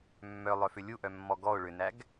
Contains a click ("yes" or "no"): no